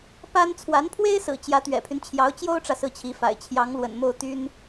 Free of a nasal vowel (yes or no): yes